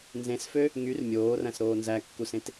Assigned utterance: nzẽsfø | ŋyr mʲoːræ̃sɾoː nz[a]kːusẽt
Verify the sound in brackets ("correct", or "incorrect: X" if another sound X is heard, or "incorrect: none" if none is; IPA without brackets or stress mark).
incorrect: æ